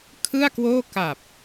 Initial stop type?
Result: aspirated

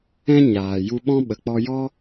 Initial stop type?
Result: implosive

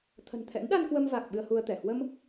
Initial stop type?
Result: aspirated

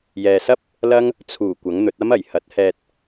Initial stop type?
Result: plain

